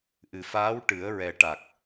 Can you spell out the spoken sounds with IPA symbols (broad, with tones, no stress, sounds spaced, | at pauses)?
ʔ ɨ˨˩ f aː˧˥ w ʈ ɨ˨˩˦ ə̯ ɹ ɛ˨˩ ʈ a˨˩ k̚